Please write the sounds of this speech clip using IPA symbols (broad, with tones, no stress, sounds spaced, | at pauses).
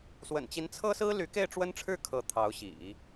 s w ə̰˨˩ n t͡ɕ i˧˥ n t͡sʰ ɤ˥ s ɹ̩˥ l y˧˥ k e˥˩ ɪ̯ ʈ͡ʂ w ə˥ n ʈ͡ʂʰ ɻ̩˥˩ kʰ ɤ˧˥ t̪ʰ ɑ˧˥ ʊ̯ ɕ ḭ˨˩˦